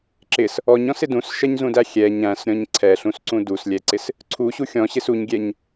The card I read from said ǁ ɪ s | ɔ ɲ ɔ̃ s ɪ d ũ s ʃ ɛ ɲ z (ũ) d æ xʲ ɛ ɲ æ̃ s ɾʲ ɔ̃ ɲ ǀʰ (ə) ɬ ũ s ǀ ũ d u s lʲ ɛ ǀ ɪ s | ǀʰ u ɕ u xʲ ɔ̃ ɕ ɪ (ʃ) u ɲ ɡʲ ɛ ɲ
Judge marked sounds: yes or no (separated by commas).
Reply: yes, no, no